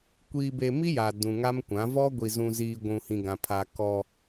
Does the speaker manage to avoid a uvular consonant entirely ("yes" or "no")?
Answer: yes